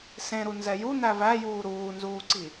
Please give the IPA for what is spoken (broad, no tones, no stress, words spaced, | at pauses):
sẽɾu nzɛju n̪ævæ juːɾuːnzuːǀi